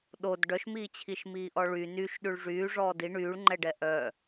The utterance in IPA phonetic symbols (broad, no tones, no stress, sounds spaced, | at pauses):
ɗ o d ɖ œ ʃ m iː t͡ɕʰ i ʃ m iː ʔ ɔ ɭ y n y ʃ ɗ y ɭ ʐ yː ʐ ɔː d i ɳ yː ɭ ŋ͡ǃ ɛ ɖ ɛ ʔ œ